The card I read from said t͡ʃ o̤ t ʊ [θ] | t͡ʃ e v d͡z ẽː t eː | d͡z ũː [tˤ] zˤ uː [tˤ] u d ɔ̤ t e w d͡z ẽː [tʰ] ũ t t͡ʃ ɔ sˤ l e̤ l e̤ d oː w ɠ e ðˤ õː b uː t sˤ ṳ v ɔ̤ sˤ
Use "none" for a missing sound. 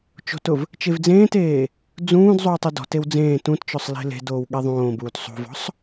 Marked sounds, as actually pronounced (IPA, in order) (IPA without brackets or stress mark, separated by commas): v, d, tˤ, t